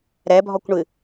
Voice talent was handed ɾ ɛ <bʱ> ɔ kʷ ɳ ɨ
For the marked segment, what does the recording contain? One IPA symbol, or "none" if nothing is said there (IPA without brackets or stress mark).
bʱ